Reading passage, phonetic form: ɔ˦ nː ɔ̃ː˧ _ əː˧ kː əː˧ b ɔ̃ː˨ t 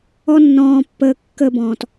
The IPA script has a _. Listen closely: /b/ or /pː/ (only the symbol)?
pː